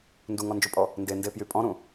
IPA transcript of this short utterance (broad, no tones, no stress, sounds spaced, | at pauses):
n d u ŋ ɔ n d͡ʒ u pʼ ɔ | n d e n d e p j y pʼ ɔ̃ ɾ ũ